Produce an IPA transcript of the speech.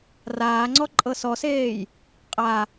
r aː ŋ͡ǀ ɔ ǃʼ ɤ s ɔ s eː j | qʼ a

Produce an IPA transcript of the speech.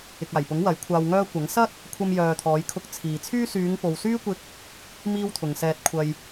ɪ˨ k̚ aː˨˩ j p ʊ˨˥ ŋ w ɐ˨˥ j kʷʰ aː˧ w ŋ œː˥ kʷ ɐ˨˥ ŋ s ɐ˥ t̚ | kʷʰ ɐ˧ m j œː˨ t̪ʰ ɔː˨˧ j kʰ ʊ˧ k̚ t͡sʰ iː˨ t͡sʰ yː˥ s yː˨˧ ŋ p o˨ w s yː˥ kʷ ɪ˧ k̚ | m iː˥ w t̪ʰ ʊ˨ ŋ s ɛː˧ t̚ kʷʰ ɐ˧ j

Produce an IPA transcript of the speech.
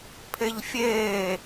pʰ e ʎ fʲ eː

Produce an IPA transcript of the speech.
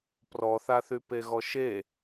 p r ɔ θ a θ y p e ɣ ɔ ʃ e

